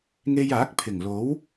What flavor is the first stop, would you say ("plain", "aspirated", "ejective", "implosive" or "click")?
plain